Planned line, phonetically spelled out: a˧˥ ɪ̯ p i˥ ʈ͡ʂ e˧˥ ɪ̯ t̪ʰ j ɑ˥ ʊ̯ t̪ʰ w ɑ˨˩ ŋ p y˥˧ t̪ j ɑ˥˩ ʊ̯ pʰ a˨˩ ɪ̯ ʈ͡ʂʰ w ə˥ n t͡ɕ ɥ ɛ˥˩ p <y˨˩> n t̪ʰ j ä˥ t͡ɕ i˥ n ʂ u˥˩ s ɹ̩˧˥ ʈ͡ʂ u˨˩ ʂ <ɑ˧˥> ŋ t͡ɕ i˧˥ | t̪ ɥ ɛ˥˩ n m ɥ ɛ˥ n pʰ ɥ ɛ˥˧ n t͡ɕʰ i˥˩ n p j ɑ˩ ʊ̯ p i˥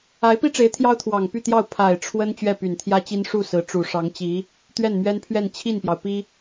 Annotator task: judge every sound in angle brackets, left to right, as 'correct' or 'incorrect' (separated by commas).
correct, correct